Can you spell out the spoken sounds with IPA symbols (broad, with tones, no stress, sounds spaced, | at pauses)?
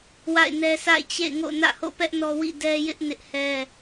w a̰˦˨ ɪ̯ n ɛ˦ s a̰˦˨ ɪ̯ t͡ɕ ḛ˦˨ ɪ̯ ŋ o̰˦˨ n ä̰˦˨ h o̰˦˨ p ɛ˦ ʔ n ɔ˦ w ḭ˦˨ d ɛ˦ j ɪ˦ ʔ n ɪ˦ ʔ h ɛ˦